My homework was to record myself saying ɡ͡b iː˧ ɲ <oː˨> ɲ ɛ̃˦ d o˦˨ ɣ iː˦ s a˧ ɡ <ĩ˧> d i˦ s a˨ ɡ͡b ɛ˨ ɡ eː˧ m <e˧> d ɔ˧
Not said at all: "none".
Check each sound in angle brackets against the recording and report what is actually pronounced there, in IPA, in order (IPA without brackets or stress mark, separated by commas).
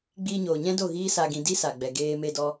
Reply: oː˨, ĩ˧, e˧